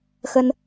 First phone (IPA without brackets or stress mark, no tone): x